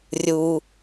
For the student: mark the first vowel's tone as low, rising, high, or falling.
low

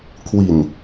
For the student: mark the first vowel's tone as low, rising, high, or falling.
low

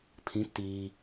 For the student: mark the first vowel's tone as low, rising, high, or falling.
rising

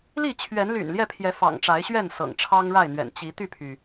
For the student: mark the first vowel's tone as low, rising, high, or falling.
falling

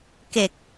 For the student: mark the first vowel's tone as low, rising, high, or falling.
low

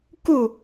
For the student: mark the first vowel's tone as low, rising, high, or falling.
falling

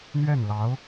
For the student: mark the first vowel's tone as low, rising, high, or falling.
falling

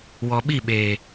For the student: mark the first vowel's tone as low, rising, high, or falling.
low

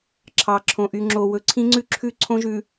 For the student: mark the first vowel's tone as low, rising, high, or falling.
low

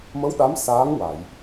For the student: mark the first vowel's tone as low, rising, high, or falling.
rising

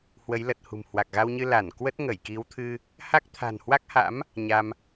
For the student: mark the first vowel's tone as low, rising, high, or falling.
rising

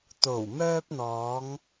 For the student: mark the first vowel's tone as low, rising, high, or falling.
low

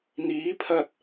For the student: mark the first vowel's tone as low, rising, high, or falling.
rising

